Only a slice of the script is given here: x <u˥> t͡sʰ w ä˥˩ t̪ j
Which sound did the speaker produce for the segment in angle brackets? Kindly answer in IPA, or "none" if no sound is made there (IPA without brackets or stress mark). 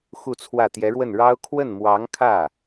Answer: u˥˧